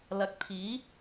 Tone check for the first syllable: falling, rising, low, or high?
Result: rising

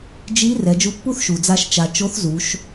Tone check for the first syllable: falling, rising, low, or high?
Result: rising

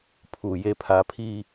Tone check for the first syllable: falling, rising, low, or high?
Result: low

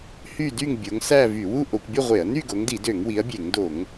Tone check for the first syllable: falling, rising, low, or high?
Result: falling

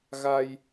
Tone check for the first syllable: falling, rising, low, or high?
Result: low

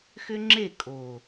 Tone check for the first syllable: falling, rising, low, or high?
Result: high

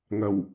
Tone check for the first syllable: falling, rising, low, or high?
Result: low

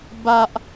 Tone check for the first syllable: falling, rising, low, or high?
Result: high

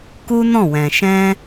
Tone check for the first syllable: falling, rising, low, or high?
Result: high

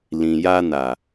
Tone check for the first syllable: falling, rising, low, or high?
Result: low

